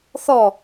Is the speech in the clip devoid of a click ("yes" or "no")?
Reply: yes